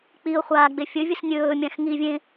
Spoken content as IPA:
k͡piʊ̯ χʷaːɡ͡befʲɵvʲɨs nʲɵː mʲãxŋivʲẽ

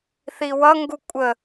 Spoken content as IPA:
θiwʌŋɡu kʷʼə

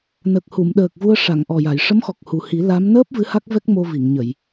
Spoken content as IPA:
nə˨˩k̚ hu˨˩˨mɗəː˨˩k̚vu˧ə̯ ʂa˨˩˨ŋʔɔ˨˩ja˨˩˨j ʂə˧˥mxɔ˨˩k̚hu˨˩hi˨˩˦ la˧˥m nəː˦˥p̚ vɨ˧˥ha˦˥k̚vɛ˦˥k̚ mo˧vi˨˩˨ŋɲə˨˩˨j

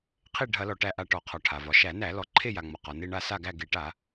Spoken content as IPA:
qʰe˦˨ɖʱɐ˧˩˧lɔ˩ ʈæ˦˨ʔa˦˨ʈɔ˧˩˧qʰɒ˩ ʈʰa˩vɒ˩ ʃæ˧˩˧næ˧˩˧ lɔ˩ǃʰe˦˨ja˩ŋ͡mɒ˩ qɒ˩ne˦˨ ɳa˦˨sa˦˨ɡæ˦˨ ɡe˧˩˧ʈa˧˩˧

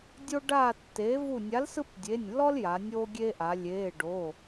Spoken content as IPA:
dʲo˦ɖaː˦˨ tːeː˨˥vu˦˨ nʲa˨˥lsɯ˦pdʲe˩˧˩nʲlːɔ˦l ja˩˧nʲoː˦ɡʲe˦ʔa˩˧ lʲeː˩˧˩ɖo˩˧˩

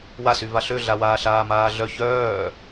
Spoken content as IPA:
wasy vaɬøɮawaː ɬaːmaːɮœ çœː

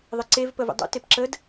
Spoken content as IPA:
ðˤɪǀev pəvḛdˤṵ tepǁəd

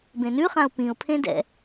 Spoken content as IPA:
bẽnʉχãʊ̯ pĩʊ̯pʰẽ dɛ̰

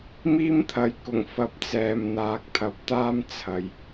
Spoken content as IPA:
miː˥mt̪ʰɐ˨˧j kʊ˨˩ŋfɐ˨˥p̚ t͡sɛː˨mn̪aː˨˥k̚t̪ʰɐ˨˥p̚ t̪aː˥mt͡sʰɐ˨j

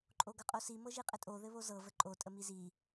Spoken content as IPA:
ǃʼoɡɤqʼosi mɤʒiqʼɘtʼo ðɘβozɤ vəǃʼo tʼəmizi

